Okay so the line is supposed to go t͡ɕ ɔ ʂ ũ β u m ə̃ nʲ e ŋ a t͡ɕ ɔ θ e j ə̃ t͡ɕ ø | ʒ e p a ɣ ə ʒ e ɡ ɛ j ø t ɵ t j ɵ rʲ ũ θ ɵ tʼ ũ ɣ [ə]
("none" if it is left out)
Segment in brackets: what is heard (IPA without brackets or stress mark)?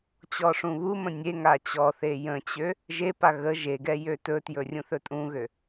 ø